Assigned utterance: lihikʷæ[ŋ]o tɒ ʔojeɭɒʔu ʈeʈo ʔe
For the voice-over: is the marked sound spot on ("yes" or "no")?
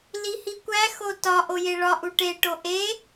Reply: no